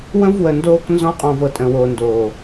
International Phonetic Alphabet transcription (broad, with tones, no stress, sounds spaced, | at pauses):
w ə̃˦ v w ə˨ n d oː˧ k n z ɔ̃˧ qʼ ɔ̃˨ v ɤ˨ tʼ ə̃˨ w oː˨ n d oː˨